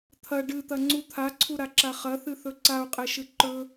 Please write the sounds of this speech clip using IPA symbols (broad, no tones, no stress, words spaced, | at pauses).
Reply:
t̪ʰɐ ɖɨt̪ɐŋ͡ǀu t̪ʰaǀʰuɾaǁa χɐθɨθɵ ǀau̯qʼeʃɨ ǃɵ